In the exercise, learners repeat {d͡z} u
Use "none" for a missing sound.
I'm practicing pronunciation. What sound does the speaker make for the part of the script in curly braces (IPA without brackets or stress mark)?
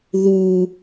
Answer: ð